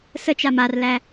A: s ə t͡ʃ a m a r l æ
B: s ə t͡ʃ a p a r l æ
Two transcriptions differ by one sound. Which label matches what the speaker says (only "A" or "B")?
A